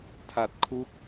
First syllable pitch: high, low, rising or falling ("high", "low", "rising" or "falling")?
low